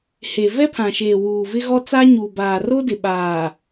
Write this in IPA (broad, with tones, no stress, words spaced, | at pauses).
he˨ vɛ˦pʰã˨ʃeː˨ wuː˨vɪ˦ɣɔ˦t͡sa˦ ɲuː˨baː˨ro˦dɪ˨ ɓaː˨